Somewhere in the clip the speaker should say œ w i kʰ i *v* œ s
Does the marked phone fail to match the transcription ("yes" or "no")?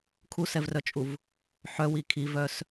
no